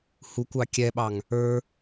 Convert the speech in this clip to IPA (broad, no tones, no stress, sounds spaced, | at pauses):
h u kʷ ɑ kʲ ɛ ɓ ɑ ŋ | ə˞